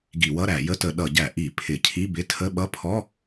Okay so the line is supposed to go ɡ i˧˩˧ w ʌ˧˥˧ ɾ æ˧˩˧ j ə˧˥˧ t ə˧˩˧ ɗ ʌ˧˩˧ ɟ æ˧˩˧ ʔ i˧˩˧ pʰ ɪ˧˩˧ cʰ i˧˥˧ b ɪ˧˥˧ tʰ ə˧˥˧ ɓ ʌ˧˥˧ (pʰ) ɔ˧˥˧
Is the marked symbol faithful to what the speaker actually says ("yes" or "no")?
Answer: yes